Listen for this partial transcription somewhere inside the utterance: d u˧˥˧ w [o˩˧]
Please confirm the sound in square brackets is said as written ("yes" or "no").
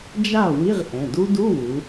no